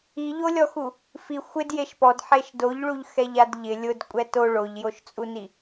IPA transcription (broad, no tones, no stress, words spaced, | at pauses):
iʎolʲɔxu | fi xʷɪd jeʃpɔd ħeʃdoʎɭuʎ xɛʎadʎɪ lʲʊd kʷʼɛto ɭoʎjoʃt͡sʼuni